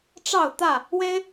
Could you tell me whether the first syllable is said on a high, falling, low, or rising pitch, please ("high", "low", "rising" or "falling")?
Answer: falling